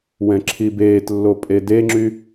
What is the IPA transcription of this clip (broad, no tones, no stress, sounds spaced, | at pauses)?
w ɛ̃ ǁʰ i b eː t lː o pʼ e d e ŋ͡ǁ y